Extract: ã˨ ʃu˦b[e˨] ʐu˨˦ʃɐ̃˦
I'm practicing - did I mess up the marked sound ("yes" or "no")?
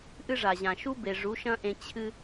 no